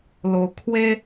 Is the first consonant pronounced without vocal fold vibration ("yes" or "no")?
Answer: no